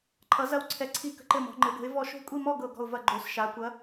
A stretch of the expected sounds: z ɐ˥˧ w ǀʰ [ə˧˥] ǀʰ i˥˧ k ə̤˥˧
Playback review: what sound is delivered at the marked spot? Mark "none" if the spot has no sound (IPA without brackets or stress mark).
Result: ɛ˧˥